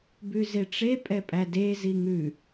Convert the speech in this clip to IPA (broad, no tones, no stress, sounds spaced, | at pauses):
b ʉ z e ʈ͡ʂ e pʼ ɛ pʼ æ d e z i ŋ ʉ